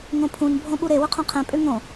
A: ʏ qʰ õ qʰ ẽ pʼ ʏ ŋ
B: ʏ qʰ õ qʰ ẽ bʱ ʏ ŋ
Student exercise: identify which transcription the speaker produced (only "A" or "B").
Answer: A